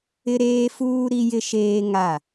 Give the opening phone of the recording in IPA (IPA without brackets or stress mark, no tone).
ɪ